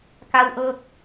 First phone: k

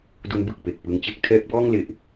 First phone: d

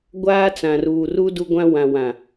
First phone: ɡʷ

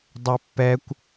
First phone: dˤ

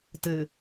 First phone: t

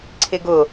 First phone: ǀʰ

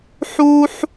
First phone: ħ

